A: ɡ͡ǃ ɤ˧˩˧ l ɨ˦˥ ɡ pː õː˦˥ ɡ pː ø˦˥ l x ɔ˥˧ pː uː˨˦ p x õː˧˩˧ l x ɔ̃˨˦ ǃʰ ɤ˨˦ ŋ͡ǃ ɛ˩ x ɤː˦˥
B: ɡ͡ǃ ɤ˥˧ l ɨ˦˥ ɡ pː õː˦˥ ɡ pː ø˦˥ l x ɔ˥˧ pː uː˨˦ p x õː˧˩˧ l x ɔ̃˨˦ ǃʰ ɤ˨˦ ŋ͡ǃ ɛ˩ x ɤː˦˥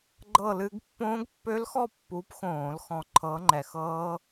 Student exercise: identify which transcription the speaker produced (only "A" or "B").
B